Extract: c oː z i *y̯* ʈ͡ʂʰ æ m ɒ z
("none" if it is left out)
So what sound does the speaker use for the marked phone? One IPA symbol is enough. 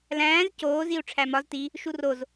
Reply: u̯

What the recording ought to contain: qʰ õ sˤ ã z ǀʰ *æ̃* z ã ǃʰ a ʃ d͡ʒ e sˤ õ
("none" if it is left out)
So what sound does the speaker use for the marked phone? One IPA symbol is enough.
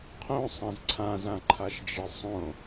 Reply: ã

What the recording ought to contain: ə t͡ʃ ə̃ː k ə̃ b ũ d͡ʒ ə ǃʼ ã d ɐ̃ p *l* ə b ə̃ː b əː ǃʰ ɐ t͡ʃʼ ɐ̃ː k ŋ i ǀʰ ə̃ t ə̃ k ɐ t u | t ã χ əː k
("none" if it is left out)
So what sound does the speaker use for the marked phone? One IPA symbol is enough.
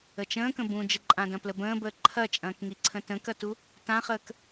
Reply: l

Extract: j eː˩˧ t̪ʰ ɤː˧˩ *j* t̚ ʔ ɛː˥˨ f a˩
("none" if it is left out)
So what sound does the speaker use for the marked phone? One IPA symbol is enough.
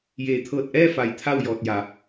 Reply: none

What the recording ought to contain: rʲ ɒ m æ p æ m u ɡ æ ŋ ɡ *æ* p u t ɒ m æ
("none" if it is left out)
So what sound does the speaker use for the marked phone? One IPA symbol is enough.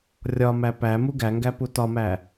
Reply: æ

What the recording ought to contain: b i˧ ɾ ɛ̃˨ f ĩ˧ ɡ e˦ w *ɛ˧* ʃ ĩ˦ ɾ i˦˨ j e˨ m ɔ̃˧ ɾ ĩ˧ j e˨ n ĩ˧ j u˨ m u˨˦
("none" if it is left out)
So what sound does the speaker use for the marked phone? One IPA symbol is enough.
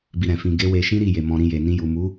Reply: e˧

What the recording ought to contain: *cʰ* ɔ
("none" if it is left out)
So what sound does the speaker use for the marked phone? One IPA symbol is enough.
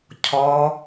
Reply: cʰ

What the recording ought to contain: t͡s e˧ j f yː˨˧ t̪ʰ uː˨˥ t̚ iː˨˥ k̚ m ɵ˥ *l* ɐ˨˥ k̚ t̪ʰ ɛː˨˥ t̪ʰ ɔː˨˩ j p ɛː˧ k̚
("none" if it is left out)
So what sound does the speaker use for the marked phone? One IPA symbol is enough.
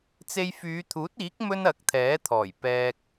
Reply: n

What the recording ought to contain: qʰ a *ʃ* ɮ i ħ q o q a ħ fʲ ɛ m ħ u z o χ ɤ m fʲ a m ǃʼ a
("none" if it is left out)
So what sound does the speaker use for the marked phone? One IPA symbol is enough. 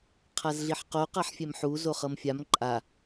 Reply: z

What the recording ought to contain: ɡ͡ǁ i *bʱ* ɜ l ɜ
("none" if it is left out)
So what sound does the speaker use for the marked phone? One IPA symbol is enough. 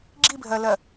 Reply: bʱ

